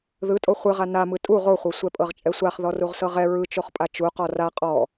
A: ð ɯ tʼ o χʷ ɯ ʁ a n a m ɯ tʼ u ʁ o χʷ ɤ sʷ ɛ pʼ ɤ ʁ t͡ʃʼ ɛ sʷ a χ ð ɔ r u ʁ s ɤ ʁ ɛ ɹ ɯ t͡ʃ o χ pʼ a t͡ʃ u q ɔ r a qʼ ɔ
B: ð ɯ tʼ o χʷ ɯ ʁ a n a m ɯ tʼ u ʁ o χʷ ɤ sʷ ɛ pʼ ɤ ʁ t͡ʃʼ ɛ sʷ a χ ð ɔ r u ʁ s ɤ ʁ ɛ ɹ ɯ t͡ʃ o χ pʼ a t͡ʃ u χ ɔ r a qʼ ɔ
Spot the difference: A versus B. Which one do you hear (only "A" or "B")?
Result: A